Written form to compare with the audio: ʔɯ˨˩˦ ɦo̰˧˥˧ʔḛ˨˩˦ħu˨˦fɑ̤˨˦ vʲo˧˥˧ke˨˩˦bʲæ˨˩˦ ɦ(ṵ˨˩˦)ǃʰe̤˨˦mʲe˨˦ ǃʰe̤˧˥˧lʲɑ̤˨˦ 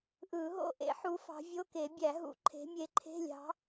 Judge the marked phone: correct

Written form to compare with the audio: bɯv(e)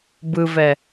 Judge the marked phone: incorrect: ɛ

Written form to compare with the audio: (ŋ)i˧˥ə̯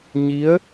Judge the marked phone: incorrect: ɲ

